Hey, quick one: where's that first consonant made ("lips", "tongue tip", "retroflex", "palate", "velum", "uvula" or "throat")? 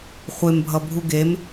uvula